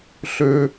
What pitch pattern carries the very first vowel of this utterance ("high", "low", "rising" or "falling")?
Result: high